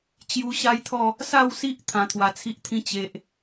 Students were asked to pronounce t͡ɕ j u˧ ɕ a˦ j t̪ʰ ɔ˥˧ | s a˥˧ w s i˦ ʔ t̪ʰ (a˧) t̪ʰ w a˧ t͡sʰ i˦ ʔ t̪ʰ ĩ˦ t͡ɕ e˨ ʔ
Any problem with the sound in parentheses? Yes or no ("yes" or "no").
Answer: yes